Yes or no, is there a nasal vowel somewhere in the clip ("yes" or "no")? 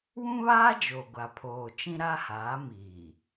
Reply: yes